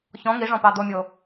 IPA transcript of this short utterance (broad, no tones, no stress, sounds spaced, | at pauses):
ç ɔ̃ ŋ i ʐ ɔ̃ p ɑ d̪ o mʲ o